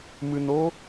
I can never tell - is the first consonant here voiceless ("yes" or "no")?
no